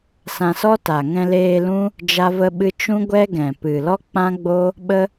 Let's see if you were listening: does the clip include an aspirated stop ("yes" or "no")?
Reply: no